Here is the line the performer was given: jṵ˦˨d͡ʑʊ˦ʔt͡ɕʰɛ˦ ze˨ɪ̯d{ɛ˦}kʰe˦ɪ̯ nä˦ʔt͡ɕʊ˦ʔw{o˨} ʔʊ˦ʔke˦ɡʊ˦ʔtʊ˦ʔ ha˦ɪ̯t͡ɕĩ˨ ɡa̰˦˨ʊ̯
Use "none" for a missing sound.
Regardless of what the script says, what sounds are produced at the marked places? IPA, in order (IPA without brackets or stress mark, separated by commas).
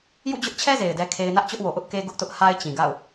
ɛ˦, o˨